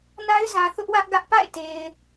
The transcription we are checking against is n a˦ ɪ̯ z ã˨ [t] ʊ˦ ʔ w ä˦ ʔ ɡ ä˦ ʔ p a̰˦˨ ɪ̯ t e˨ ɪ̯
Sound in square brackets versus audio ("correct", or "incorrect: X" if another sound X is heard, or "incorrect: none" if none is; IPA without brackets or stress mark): incorrect: θ